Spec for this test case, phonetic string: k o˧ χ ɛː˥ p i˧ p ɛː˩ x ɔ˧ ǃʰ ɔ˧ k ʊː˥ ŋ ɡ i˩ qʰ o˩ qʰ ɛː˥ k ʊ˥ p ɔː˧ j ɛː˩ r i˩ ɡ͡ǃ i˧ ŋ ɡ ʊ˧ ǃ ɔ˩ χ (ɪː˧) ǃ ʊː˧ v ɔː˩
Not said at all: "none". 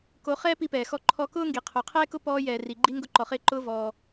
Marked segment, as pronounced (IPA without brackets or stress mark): ɪː˧